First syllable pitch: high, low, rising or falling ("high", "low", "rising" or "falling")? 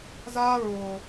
high